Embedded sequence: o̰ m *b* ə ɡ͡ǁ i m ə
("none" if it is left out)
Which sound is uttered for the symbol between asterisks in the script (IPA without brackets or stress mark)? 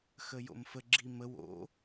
f